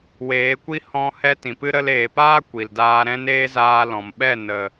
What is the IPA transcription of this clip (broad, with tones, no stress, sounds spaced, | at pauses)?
w eː˨˦ kʷ i˦ h ɔ̃˧ h ɛ˧ t ĩ˨ p ɨ˦ ɾ ə˧ l eː˨ p aː˦ kʷ i˨ l d aː˧ ɾ ɛ̃˦ n eː˦ z aː˧ l ɔ̃˨ m ɓ ɛ˦˨ n ə˨